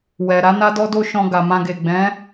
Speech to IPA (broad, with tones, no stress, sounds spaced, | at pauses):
w ɛ˨ ɾ a˨˦ n a˦ d ɔ˦ d o˦ ʃ ɔ̃˧ ɡ a˨ m ã˧ ɡ e˨ ɡ͡b ɛ̃˨˦